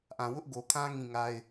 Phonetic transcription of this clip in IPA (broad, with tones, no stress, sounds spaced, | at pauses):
ʔ ã˨ w ʊ˦ ʔ ɡ o˨ kʰ ã˦ ŋ ĩ˦˨ ŋ a˦ ɪ̯